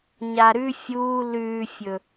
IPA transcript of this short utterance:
ɲaɾʉ fʲuː lʉːfʲɵ

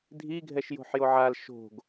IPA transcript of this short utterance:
dʱiɡʱɛʃjo̤ħjo ʕal ʃo̤ɡ

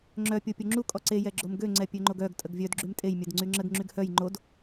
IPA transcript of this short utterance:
ŋ͡ǁœ pʲopʲoŋ͡ǁu kʼɔǀe jɛɡ͡ǁomɡø ŋ͡ǀɛpʲøŋ͡ǃoɡœɡ tʼəɡvʲœd ɡ͡ǁymtʼej mʲœdŋ͡ǀyŋ͡ǁəɡ ŋ͡ǁyɡhœj ŋ͡ǃod

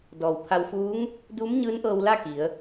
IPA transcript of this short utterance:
dɔː˩wpʰa˧wfuː˧˥ŋ | duː˧˥mɲɯː˧˥nʔɤː˧wla˥˨ ki˩˧ə̯

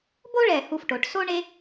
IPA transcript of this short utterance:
bo˥ɭɛ˧˩ hu˧˩fʈo˩˧ʈ so˥ɳe˥

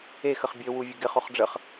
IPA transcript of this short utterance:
ex əχbʲø wuvʲəɡɪχ oχɖ͡ʐəχ

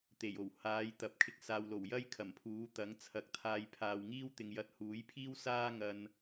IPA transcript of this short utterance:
t̪e˨˩jo˨˩w haː˨˥jt̪ɐ˨˥p̚ kʰɪ˨˥k̚ saː˨wlo˨˩w jɐ˥jkʰɐ˨˩mpʰuː˨˥ t̪ɐ˨˥ŋt͡sʰɐ˨k̚t̪ʰaː˧j pʰaː˨wŋiː˥wt̪ɪ˨ŋ jɐ˧t̚huː˨˥jpʰiː˥wsaː˥ ŋɐ˧n

